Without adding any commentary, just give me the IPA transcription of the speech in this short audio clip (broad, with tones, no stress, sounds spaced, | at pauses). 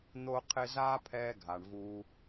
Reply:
n̪ o˧ qʰ ɪ˧ z aː˦ pʰ ɛː˧ ɡʱ a˨ ɳ v uː˦